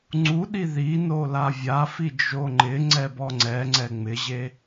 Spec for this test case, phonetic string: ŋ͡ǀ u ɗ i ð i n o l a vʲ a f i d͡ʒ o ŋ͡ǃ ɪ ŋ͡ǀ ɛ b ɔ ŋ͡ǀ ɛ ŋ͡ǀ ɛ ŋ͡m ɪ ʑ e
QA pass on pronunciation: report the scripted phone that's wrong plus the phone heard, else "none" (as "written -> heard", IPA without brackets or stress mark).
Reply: none